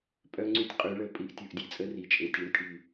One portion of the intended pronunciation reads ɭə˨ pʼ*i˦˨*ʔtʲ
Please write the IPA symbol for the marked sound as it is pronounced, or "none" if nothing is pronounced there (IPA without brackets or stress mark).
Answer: i˦˨